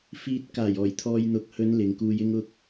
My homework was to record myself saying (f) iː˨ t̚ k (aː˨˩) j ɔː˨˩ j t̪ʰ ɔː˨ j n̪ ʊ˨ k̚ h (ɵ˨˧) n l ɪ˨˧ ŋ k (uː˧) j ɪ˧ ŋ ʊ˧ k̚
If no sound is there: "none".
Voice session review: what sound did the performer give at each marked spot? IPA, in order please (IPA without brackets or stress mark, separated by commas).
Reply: f, aː˨˩, ɵ˨˧, uː˧